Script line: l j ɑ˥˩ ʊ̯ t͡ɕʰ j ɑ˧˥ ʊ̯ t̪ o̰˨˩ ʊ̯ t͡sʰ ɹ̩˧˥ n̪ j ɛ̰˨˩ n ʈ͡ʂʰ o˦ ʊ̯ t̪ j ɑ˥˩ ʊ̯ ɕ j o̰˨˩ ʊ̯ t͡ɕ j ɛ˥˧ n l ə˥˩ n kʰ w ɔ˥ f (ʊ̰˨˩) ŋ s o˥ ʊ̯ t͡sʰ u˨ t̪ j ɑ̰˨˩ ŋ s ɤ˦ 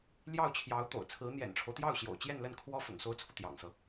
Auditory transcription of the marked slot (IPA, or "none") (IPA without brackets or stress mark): ʊ̰˨˩